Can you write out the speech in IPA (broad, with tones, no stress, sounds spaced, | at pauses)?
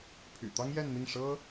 pʰ y̰˨˩ t̪ ɑ˥ ŋ j ɛ˥˧ n n̪ i˥˩ ŋ ʂ ɤ˥